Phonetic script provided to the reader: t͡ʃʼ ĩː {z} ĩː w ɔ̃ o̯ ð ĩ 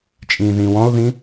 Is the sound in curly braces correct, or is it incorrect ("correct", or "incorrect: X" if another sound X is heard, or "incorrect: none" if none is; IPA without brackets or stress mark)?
incorrect: ð